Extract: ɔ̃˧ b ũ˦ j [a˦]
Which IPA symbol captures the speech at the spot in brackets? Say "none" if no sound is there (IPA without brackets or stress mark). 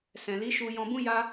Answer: a˦